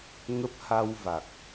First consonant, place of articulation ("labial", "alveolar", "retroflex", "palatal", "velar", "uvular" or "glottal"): velar